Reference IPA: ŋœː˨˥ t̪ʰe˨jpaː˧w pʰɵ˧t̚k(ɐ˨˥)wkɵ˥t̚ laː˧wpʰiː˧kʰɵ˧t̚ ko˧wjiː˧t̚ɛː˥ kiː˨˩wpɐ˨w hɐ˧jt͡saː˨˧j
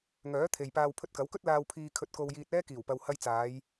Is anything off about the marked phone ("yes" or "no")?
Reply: no